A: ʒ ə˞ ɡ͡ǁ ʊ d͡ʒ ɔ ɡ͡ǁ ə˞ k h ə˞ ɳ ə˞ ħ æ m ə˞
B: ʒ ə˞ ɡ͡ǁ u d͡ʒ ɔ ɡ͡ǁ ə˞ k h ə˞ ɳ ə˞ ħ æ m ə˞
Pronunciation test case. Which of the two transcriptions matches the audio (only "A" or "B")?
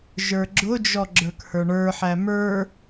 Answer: A